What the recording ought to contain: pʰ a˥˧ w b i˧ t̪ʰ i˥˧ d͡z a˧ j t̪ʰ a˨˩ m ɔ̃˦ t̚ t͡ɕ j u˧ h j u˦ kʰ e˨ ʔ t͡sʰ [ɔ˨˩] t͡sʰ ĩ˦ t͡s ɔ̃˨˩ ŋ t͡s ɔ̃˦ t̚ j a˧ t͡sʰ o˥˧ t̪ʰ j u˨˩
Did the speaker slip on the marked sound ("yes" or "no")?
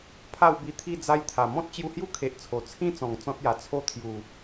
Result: yes